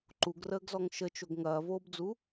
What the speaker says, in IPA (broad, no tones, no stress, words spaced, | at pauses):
ǃuɡrəːɡzɔŋ ʃət͡ʃoɡ ŋɐːvoːbd͡zu